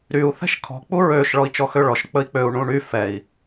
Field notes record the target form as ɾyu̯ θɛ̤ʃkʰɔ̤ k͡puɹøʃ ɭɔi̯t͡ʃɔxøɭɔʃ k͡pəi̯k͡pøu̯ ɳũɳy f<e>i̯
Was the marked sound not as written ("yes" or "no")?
yes